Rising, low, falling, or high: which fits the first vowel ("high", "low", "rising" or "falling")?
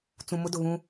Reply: low